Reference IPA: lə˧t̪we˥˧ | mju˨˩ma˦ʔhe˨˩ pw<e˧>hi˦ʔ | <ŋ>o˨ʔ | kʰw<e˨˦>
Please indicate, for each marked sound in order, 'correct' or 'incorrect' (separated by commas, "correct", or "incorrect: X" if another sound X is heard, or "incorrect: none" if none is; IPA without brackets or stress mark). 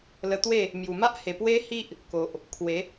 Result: incorrect: e˦, incorrect: k, correct